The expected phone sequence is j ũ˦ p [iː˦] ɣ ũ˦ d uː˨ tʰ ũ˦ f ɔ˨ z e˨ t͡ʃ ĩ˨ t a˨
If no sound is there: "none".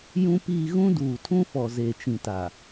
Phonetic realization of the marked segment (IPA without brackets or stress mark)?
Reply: iː˦